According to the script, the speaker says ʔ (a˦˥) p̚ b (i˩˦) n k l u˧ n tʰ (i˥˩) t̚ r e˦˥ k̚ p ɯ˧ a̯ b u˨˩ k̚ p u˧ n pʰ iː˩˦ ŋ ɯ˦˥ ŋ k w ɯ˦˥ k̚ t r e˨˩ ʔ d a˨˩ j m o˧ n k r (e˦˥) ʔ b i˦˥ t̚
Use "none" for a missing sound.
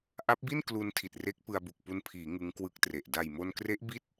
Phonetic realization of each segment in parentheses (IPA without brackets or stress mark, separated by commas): a˦˥, i˥˩, i˨˩, e˦˥